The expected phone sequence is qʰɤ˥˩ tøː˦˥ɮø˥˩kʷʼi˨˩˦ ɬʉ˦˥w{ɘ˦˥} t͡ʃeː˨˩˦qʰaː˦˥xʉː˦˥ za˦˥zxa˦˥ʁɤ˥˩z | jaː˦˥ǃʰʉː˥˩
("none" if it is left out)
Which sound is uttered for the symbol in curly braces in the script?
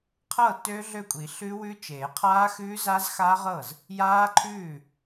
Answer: ʉ˦˥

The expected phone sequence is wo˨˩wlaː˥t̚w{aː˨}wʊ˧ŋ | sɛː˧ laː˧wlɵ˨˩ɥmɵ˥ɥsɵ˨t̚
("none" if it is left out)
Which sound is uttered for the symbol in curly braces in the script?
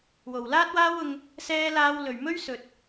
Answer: aː˥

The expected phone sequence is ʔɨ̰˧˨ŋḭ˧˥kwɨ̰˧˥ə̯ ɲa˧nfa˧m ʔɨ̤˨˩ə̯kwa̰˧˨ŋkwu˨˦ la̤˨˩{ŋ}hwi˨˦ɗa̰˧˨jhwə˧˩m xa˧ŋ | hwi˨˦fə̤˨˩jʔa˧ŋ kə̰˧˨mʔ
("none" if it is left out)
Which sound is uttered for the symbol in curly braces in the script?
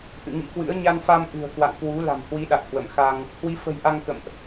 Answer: m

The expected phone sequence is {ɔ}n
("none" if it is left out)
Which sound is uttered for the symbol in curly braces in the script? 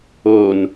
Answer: o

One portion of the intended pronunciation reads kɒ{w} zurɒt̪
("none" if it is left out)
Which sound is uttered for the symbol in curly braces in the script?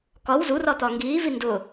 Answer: w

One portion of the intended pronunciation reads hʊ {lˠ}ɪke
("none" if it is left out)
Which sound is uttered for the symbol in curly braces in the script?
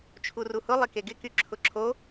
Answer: lˠ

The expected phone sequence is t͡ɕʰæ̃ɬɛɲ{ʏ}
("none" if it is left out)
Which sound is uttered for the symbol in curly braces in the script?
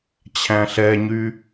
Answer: y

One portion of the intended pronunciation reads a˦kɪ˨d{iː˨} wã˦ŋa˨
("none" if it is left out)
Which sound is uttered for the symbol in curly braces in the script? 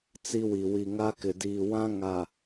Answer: iː˨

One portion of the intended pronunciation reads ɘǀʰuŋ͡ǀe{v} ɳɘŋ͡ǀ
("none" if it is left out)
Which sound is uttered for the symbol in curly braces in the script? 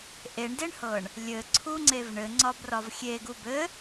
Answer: v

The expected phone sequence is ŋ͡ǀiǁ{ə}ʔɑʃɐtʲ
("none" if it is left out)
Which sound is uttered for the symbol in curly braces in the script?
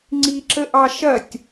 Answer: ə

